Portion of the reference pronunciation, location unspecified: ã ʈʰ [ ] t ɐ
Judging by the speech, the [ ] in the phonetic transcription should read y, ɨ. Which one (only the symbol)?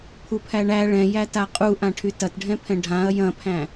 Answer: y